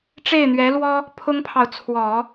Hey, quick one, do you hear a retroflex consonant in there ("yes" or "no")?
yes